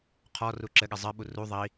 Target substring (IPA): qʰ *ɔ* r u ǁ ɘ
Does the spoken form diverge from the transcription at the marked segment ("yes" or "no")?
no